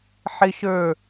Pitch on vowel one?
high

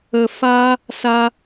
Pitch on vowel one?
low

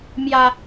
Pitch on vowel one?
low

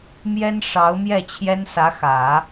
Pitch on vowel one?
high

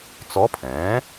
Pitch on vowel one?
rising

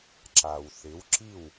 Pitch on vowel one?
low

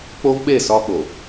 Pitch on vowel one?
high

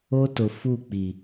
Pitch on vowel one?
high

